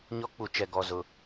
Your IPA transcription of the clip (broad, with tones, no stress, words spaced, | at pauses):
ɲɔ˦k͡pu˨t͡ʃɛ˨ ɡɔ˨zʊ˨